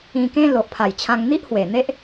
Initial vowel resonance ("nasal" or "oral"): nasal